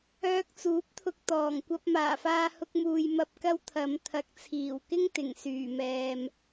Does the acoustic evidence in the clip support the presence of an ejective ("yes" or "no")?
no